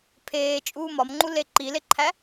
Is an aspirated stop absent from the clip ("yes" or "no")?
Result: no